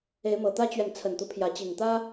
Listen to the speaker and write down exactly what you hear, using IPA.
e˨˦ ɪ̯ m ɤ˨˩ t̪ ä˦ t͡ɕ ɥ ɛ˨ n t͡sʰ ə˨˩ n t̪ u˦ pʰ j ä˨˦ t͡ɕ i˨˩ ŋ t̪ ä˦

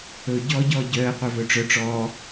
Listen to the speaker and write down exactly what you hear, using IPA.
ɵ ɟ ɔː ɟ ɔː ɟ œː ə̯ qʷ œ v ɵ ʈ͡ʂ œ ʈ͡ʂ ɔː

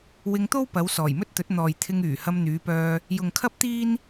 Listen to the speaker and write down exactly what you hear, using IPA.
w ɪ˧ ŋ t̪ o˥ w p ɐ˨˧ w s ɔː˨˩ j m ɵ˥ t̚ t̪ ɵ˨˥ t̚ n̪ ɔː˨ j t̪ʰ ɪ˧ ŋ yː˨˩ h ɐ˧ m n̪ yː˨˧ p œː˧ | j ʊ˨ ŋ kʰ ɐ˥ p̚ t̪ iː˥ n

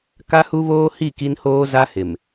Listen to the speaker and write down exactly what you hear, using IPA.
k a˦ h u˦ β oː˦ h i˦˨ k i˦ n h oː˦ z a˦ h ɪ˨ m

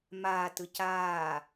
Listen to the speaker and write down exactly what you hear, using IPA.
m aː t ɯ c aː

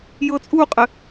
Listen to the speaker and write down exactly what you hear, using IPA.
j ɤ t͡sʼ u qʼ ɘ

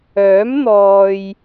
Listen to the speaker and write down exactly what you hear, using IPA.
œː˨˥ m n̪ ɔː˨ j

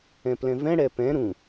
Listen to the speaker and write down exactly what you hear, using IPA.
ɛ̃ p l ɛ̃ v ɛ̃ ɽ ɛ p ɛ̃ ɾ ũ

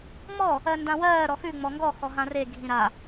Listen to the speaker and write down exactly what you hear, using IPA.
ŋ͡m ɔ | ɜ n d ã w ɜː ɾ ɔ x ʉ ŋ͡m ɔ ŋ ɡ ɔ x ɔ ɦ ã r e ɡʱ ĩ ɾ a

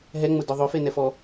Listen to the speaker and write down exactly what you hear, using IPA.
ɦ ɛ ŋ͡m ʊ d ʊ ðˤ ʊ f e n ɛ f ɔ

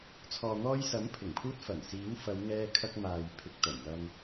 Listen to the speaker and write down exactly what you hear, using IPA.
t͡sʰ ɔː˨ n̪ ɔː˧ j s ɐ˨˥ m pʰ ɪ˨˩ ŋ pʰ uː˧ t̚ f ɐ˨˩ n s iː˨˥ w f ɐ˨˧ w ŋ ɛː˧ kʰ ɐ˧ k̚ m aː˨ j pʰ ɪ˨ k̚ t̪ ɐ˨˩ j m ɐ˧ m

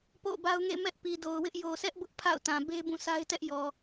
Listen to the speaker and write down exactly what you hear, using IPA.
p o̰˦˨ b a˦ ʊ̯ ŋ ḛ˦˨ m ɛ˦ ʔ p i˨ d o˨ ʊ̯ w ɪ˦ ʔ j o˨ sʰ ɛ˦ ʔ b ʊ˦ ʔ pʰ a̰˦˨ ʊ̯ t ã˨ b e˦ b ũ˦˨ s a˦ ɪ̯ t ɛ˦ ʔ j ɔ˨

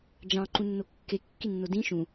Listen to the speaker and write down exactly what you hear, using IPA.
d͡ʒ ɑ̃ ǃ ũ nː o kː e kː i nː o d ĩ ʃ ũ

